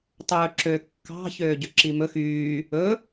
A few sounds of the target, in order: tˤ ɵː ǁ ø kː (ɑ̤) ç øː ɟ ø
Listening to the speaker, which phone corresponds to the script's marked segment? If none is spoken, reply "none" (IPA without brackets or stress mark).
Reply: ɑ̤